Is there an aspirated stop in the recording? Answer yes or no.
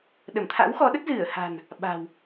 yes